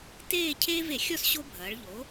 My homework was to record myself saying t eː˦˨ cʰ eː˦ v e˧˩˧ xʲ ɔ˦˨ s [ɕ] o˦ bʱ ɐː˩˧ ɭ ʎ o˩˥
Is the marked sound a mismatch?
no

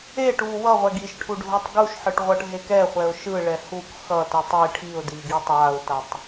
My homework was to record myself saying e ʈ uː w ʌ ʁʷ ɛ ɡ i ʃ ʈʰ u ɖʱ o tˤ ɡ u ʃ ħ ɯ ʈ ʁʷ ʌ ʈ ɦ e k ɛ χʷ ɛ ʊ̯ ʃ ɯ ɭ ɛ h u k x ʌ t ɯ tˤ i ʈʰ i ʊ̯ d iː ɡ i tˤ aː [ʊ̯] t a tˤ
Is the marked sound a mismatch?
no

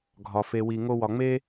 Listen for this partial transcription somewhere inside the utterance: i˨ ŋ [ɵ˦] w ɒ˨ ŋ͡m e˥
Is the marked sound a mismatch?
yes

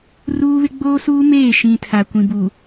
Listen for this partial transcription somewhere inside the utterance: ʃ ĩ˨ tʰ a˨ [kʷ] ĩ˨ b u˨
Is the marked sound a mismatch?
no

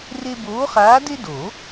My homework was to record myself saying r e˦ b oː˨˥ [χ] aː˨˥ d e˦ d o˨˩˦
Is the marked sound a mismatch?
no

